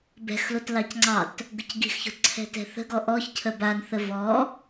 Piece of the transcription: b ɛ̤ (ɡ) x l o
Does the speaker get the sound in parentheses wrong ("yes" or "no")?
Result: yes